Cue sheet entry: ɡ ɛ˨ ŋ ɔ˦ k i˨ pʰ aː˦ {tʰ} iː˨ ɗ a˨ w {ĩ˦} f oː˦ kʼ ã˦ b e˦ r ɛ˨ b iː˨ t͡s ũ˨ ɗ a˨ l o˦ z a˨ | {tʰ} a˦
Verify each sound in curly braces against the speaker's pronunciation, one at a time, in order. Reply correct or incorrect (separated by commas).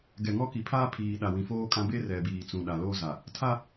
incorrect, incorrect, correct